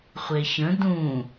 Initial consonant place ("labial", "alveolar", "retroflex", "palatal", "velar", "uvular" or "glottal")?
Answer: uvular